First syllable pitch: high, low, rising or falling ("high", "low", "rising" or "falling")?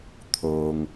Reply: low